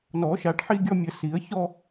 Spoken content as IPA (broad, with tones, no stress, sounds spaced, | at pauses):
n ɔ˨˩˦ ʃ a˨˩˦ ʈ ħ i˥˧ ɡʲ ɔ˥˧ mʲ ə˨˩˦ s i˨˩˦ ə̯ ç ɔ˥˧